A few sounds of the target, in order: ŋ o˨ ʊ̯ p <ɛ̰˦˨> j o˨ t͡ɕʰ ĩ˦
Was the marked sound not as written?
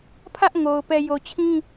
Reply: yes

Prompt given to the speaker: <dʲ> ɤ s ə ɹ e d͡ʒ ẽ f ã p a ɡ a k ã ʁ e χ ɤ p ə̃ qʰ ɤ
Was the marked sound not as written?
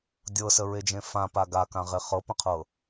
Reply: no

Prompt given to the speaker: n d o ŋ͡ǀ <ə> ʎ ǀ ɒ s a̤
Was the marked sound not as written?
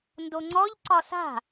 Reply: yes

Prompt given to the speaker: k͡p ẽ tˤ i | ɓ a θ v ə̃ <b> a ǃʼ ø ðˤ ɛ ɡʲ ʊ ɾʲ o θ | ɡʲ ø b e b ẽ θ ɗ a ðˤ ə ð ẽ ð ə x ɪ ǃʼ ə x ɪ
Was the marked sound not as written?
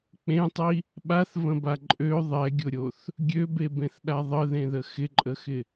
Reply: no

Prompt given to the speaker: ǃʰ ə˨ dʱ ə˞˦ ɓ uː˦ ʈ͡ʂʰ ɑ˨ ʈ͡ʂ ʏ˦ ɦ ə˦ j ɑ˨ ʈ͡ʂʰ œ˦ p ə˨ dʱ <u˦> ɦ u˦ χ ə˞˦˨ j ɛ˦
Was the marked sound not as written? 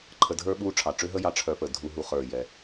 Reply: no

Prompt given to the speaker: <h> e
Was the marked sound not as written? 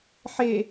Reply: yes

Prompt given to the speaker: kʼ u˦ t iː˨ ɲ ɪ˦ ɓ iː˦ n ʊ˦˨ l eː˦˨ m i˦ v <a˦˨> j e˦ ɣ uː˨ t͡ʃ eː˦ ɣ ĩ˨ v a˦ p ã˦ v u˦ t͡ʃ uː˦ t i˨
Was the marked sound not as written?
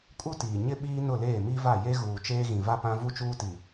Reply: no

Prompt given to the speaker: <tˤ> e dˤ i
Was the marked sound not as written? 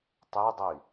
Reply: no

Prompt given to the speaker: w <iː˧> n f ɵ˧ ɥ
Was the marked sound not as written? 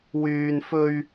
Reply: yes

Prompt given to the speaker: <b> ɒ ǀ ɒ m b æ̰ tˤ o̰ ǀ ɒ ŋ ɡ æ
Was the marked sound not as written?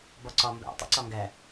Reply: no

